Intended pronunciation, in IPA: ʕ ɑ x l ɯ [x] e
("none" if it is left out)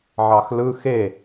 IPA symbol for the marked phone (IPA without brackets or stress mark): x